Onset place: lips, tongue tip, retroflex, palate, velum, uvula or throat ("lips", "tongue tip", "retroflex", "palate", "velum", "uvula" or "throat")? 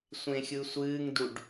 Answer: tongue tip